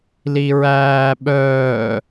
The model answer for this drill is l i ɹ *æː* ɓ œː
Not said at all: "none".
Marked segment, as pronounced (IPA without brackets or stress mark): æː